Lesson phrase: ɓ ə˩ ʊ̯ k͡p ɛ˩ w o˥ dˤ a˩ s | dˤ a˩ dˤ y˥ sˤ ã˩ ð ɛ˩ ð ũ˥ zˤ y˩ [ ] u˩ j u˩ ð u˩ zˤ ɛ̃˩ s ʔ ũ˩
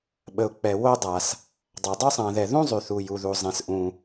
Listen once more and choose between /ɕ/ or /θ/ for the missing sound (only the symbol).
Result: θ